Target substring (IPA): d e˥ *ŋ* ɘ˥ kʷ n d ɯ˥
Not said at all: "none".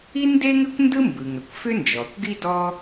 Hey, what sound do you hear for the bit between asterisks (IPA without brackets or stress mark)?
ŋ